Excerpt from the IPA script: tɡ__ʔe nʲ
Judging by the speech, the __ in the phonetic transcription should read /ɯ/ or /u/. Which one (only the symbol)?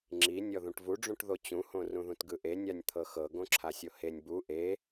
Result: ɯ